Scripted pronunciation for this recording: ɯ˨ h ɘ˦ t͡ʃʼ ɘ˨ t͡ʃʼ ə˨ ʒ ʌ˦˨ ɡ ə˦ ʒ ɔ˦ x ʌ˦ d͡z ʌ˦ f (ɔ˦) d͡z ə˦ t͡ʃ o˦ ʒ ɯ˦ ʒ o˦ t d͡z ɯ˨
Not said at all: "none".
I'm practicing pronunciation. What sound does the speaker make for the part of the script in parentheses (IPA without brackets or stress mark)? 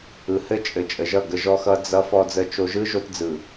ɔ˦